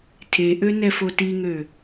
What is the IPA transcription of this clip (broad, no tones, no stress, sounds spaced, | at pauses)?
tʰ e ʔ ø n ɛ f o t i ŋ ø